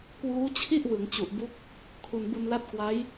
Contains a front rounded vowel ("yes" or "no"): no